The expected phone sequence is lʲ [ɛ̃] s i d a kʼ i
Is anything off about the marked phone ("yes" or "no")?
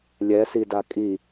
yes